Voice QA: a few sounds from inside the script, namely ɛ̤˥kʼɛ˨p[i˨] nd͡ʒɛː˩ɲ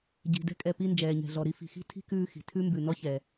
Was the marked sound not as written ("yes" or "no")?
yes